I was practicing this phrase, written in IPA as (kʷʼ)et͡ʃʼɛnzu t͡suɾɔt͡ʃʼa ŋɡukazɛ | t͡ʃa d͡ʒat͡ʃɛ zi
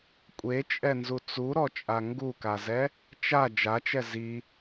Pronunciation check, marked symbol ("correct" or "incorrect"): correct